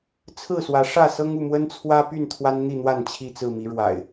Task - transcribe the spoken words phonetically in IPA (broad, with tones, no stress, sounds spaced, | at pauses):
t͡sʰ ɹ̩˥˨ s w ä˨˦ ʂ ä˥˨ s ɤ˦ ŋ u˥˨ m w ə˦ n t͡sʰ w ä˦ p y˥˨ n t̪ʰ w a˦ n n̪ i˥˨ n̪ w a˥˨ n t͡ɕʰ i˥˨ t͡s ɹ̩˥˨ m i˨˦ ɻ w a̰˨˩ ɪ̯